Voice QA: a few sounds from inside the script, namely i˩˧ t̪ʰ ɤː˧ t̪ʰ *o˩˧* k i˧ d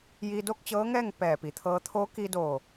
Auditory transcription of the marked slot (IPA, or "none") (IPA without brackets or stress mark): o˧˥